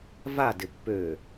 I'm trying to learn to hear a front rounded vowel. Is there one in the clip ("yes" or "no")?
yes